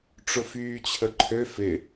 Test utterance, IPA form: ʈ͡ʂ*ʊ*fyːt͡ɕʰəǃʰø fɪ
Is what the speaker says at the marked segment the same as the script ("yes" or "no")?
yes